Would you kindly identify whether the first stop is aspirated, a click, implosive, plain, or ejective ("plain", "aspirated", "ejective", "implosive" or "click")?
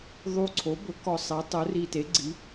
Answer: click